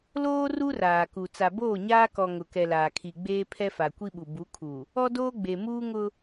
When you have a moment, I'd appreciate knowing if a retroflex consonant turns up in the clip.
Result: no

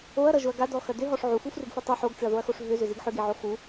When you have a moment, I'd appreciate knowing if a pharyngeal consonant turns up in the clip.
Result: yes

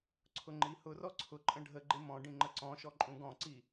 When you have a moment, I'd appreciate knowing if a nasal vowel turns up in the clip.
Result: yes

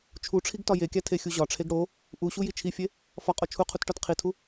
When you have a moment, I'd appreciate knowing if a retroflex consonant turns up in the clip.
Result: yes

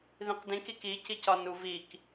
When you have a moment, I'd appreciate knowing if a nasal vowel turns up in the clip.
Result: yes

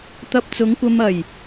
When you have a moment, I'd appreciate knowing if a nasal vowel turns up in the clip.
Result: no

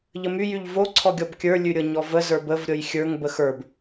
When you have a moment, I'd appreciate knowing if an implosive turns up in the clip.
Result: no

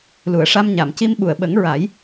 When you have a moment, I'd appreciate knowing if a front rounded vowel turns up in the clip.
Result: no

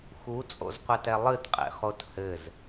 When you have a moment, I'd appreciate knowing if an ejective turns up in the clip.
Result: yes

